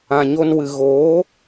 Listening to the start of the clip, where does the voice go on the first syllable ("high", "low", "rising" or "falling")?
low